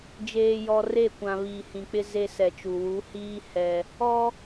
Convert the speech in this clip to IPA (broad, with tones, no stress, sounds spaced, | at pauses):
d͡ʒ eː˨ j ɔ˨ r e˦˨ kʷ ã˨ β iː˨ h ĩ˨ k͡p ɪ˦ z e˦ s ɛ˨ t͡ʃ u˨ w u˨˦ h iː˦ h ɛ˦ | ɔ˦